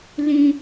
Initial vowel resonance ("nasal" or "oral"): nasal